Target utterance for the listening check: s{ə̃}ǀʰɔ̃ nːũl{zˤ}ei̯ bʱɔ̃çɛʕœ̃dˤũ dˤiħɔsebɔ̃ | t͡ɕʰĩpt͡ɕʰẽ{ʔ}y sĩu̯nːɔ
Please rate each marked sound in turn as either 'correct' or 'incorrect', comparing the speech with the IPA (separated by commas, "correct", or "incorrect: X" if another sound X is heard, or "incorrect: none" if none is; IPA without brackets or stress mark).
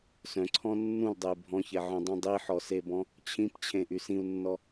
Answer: incorrect: œ̃, incorrect: dˤ, correct